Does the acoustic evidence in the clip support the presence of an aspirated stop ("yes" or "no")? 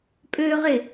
no